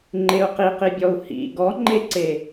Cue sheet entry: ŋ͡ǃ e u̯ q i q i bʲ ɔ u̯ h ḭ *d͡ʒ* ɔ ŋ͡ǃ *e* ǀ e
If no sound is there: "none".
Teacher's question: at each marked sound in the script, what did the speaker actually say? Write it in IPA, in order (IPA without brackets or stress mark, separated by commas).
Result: ɡ, e